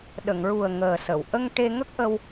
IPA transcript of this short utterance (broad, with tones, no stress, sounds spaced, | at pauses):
ɗ ə˨˩˨ ŋ ɹ u˨˩ ə̯ ŋ əː˨˩ s ə˨˩˨ w ʔ ə˧ ŋ ʈ e˧ ŋ ə˦˥ k̚ ʔ ə˧ w